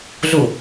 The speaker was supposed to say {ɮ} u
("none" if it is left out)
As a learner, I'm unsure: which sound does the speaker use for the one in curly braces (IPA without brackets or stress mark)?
ɮ